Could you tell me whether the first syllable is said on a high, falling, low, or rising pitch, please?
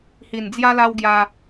low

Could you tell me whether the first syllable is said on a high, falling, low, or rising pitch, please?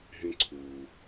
high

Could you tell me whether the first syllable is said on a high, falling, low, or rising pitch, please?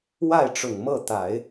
falling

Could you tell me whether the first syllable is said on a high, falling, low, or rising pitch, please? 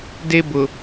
high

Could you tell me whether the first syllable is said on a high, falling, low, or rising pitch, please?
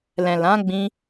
low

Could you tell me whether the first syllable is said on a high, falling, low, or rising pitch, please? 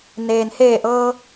low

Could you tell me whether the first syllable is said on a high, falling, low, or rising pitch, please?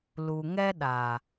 low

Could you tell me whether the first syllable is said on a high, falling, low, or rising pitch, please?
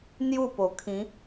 falling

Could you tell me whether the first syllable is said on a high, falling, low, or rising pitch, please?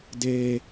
low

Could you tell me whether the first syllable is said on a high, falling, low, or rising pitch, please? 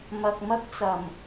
low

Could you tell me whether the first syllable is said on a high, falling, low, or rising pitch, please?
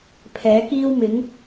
rising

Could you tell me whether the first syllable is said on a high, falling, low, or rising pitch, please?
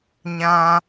high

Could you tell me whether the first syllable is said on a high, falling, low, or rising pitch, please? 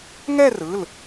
falling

